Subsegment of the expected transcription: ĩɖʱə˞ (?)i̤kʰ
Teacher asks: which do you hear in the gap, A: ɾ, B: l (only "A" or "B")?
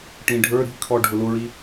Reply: A